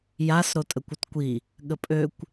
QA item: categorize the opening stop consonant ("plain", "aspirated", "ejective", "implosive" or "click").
ejective